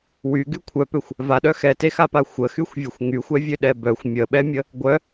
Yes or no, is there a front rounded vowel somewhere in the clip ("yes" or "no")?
yes